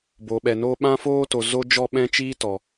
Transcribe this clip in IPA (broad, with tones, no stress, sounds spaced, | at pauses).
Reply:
b o˨ ɓ ɛ˨ n o˧ ɓ ã˧ f oː˧ t o˨ z o˦ d͡ʒ ɔ˦˨ ɓ ɛ̃˦ t͡ʃ iː˦ t ɔ˨